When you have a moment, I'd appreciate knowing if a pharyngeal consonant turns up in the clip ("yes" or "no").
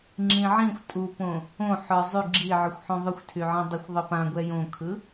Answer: yes